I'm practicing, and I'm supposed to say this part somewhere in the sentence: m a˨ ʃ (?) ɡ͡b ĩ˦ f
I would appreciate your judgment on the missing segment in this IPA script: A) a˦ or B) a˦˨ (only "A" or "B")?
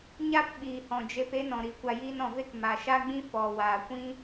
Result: A